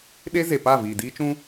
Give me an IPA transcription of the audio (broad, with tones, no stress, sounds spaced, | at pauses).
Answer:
ɗ e˦ z e˨ p a˦˨ v iː˨ d iː˦ t͡ʃ ũ˦